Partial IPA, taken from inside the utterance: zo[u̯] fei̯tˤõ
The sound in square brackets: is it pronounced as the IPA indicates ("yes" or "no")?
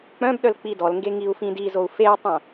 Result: yes